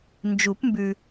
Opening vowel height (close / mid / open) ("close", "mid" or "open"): close